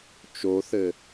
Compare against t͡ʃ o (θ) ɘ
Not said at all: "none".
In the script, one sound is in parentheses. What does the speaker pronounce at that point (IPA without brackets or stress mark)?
θ